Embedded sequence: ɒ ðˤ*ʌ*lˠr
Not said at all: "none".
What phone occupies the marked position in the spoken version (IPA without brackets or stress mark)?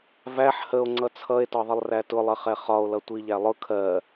ə